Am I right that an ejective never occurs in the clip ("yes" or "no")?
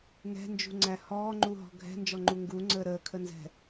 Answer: yes